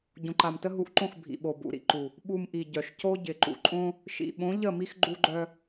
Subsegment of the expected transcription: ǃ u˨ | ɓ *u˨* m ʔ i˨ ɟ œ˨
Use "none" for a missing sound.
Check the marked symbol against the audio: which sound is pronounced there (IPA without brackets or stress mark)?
u˨